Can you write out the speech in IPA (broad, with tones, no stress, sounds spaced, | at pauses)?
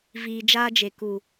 v iː˧ d͡ʒ aː˦ d͡ʒ e˨ k u˨